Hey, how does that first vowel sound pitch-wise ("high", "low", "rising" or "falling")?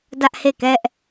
high